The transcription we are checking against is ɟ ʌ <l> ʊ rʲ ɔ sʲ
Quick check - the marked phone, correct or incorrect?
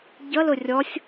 correct